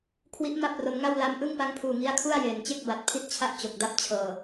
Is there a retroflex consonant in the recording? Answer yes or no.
no